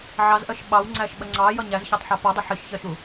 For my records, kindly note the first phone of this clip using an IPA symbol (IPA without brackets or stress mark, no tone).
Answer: ʕ